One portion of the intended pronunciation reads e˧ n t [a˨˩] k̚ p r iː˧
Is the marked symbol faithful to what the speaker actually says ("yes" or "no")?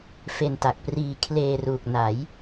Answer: yes